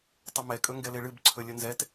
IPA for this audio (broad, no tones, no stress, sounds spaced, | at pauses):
tˤ ə m ɛ kʼ ɵ ŋ ɡ ɛ l e ɭ ɨ b ǀʰ ɵ lʲ ə n z ɛ t